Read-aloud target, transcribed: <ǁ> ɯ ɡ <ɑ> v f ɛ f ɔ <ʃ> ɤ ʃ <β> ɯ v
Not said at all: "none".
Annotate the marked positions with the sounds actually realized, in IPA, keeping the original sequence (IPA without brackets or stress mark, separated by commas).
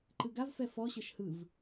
ǃ, a, ɕ, h